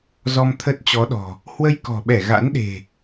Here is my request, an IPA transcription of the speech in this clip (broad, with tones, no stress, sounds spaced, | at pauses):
z ɔ˧ m t̪ʰ ə˦˥ t̚ t͡ɕ ɔ˨˦ ɗ ɔ̤˨˩ | h w ə˧ j k ɔ̤˨˩ ɓ ɛ˧˩ ɣ a̰˧˥ n ɗ e̤˨˩